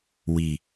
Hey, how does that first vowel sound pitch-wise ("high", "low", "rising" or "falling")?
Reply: low